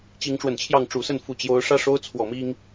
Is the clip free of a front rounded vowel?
yes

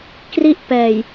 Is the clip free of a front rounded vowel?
yes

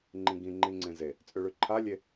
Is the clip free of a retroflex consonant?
no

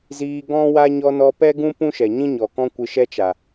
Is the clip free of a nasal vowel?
no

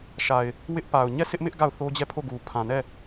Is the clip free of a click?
yes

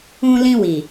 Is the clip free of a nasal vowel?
no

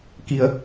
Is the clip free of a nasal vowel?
yes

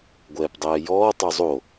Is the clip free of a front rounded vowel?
yes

